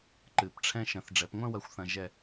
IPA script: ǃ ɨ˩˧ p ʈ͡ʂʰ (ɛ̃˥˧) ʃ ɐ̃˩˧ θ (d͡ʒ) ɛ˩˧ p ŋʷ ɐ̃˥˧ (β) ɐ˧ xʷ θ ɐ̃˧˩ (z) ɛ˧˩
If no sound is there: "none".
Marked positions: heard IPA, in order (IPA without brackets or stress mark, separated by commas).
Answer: ɛ̃˧, ɖ͡ʐ, w, ʒ